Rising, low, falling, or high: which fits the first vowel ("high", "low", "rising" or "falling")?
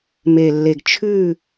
low